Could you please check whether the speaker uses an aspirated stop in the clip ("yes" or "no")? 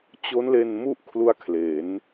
yes